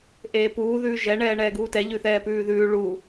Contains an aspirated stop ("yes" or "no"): no